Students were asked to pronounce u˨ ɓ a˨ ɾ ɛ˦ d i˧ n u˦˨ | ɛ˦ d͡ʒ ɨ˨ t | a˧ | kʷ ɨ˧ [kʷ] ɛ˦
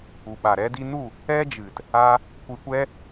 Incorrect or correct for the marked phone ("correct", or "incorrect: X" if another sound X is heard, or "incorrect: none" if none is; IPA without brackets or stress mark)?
correct